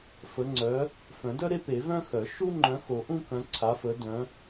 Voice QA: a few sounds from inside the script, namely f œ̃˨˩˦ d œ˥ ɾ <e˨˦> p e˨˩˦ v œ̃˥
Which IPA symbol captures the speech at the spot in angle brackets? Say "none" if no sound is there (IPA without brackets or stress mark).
e˥